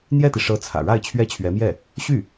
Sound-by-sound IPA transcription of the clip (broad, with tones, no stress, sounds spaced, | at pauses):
n̪ j ɛ˥˩ t̪ i˩ ʂ ɤ˧˥ t͡sʰ ä̰˨˩ ɻ a˥˩ ɪ̯ t͡ɕʰ ɥ ɛ˥ t͡ɕʰ ɥ ɛ˧˥ m j ɛ˥˩ | ɕ y˥˩